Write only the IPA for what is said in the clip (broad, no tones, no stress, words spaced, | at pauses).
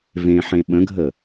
vẽħẽ ɓə̃ɡʱə